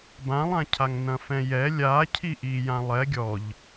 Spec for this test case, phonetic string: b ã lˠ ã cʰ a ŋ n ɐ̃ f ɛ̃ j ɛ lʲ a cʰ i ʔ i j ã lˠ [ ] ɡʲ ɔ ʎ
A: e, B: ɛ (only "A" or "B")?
B